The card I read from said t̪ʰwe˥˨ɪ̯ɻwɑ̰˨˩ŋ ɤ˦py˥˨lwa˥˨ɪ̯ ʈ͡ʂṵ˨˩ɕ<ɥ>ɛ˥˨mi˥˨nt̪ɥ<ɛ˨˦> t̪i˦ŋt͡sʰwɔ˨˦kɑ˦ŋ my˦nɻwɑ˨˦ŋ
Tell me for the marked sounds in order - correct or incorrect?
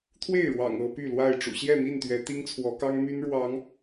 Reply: incorrect: j, correct

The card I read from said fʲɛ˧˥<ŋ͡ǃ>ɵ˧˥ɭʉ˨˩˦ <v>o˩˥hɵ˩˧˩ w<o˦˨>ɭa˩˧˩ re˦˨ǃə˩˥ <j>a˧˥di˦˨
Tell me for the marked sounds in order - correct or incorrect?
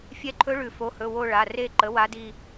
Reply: incorrect: ǃʰ, incorrect: f, correct, incorrect: w

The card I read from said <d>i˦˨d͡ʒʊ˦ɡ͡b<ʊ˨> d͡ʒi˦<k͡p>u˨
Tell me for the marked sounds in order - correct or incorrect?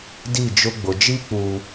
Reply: correct, correct, correct

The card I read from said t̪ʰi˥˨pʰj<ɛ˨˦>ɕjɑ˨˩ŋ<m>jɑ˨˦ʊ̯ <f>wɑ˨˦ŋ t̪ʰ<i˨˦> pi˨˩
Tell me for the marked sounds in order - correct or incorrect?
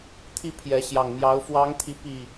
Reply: correct, correct, correct, correct

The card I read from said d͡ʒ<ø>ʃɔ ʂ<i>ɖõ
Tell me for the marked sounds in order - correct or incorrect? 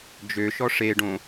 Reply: correct, incorrect: e

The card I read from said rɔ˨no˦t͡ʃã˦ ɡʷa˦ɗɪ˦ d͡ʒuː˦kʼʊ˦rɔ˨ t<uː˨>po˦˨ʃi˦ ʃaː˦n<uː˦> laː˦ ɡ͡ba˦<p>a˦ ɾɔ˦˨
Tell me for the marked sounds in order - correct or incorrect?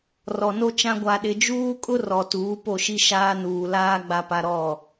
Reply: incorrect: uː˨˦, incorrect: uː˨, correct

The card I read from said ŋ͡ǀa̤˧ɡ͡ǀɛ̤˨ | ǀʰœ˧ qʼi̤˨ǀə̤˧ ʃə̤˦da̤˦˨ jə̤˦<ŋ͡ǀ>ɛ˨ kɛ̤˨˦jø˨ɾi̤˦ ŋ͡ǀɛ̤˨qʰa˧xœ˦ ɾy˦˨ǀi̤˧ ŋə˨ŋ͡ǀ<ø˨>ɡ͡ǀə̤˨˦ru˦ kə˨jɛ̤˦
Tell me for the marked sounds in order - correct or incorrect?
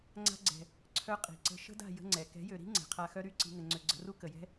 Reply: correct, correct

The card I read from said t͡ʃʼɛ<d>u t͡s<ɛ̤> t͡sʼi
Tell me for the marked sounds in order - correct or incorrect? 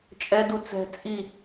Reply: correct, correct

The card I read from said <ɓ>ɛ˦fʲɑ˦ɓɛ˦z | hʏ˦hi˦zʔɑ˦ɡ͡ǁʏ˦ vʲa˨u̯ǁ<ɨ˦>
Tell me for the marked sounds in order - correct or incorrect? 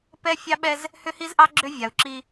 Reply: incorrect: p, incorrect: i˦

